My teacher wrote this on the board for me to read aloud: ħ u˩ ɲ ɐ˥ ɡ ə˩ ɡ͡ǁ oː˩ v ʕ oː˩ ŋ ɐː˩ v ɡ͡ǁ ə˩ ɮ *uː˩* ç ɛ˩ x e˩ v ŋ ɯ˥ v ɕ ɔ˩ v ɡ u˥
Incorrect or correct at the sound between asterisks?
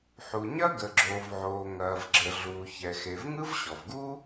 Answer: correct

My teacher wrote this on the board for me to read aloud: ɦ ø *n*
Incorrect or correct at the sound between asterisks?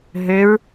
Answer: incorrect: ɹ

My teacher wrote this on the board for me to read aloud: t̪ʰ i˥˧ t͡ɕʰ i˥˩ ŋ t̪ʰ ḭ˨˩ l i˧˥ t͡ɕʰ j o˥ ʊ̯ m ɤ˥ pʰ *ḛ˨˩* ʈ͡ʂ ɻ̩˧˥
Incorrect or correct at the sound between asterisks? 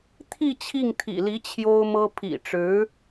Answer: incorrect: ḭ˨˩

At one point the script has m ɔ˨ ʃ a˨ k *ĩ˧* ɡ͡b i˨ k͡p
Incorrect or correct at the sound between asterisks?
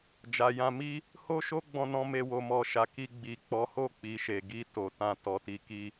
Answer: incorrect: i˧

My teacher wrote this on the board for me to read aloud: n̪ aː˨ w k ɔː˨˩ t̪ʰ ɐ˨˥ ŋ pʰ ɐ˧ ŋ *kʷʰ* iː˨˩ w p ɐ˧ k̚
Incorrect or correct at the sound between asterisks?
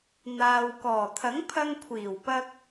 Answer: correct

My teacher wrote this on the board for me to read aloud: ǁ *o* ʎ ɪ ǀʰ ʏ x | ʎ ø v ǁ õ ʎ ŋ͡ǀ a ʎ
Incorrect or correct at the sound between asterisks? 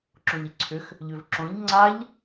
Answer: incorrect: õ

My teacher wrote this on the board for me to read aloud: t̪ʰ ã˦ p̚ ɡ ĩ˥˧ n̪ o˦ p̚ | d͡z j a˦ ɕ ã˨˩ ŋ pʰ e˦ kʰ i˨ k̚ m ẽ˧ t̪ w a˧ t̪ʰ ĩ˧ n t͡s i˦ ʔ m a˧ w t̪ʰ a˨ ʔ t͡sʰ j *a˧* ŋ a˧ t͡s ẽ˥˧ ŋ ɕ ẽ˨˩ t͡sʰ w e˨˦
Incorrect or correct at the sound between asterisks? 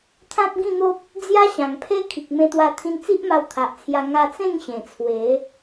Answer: correct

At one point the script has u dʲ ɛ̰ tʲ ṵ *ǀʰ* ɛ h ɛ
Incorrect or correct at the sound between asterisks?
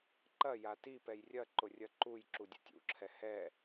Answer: incorrect: ǁʰ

